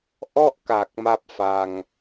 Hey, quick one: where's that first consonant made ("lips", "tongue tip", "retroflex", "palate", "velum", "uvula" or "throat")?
throat